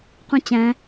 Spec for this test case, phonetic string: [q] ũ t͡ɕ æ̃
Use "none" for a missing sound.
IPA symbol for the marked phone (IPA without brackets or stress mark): q